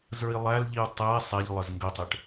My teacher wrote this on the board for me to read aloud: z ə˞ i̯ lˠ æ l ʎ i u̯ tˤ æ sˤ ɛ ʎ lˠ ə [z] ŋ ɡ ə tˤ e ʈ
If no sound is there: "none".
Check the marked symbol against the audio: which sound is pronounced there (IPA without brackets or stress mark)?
z